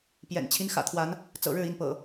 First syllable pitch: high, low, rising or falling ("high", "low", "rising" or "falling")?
low